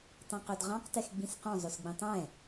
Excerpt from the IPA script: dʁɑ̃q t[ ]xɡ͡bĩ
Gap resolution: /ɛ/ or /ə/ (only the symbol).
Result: ɛ